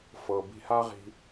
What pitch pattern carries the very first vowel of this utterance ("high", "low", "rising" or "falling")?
low